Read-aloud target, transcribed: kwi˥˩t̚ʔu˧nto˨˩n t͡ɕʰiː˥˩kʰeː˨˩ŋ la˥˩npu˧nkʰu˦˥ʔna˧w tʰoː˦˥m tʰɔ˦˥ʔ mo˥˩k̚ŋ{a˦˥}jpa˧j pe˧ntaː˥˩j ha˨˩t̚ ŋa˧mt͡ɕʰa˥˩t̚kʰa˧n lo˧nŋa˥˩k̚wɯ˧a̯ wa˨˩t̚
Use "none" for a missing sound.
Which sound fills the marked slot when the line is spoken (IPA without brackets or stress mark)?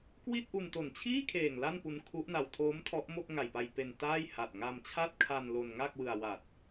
a˨˩